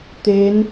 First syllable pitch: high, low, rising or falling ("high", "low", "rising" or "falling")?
rising